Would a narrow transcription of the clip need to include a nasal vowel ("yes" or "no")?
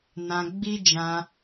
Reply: yes